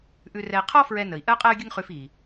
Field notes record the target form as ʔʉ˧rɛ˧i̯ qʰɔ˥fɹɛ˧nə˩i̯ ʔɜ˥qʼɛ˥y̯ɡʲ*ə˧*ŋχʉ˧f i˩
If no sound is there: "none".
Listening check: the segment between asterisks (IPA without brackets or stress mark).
ə˥